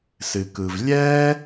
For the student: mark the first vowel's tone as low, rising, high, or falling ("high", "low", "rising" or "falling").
low